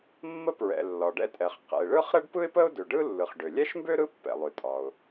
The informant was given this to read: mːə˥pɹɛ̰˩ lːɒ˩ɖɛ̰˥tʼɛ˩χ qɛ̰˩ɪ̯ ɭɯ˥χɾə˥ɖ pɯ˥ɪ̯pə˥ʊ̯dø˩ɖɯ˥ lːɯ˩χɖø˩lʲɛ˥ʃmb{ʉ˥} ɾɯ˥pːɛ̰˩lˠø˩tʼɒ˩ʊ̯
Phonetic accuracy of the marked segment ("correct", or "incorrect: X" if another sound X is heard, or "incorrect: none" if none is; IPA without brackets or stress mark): incorrect: ø˥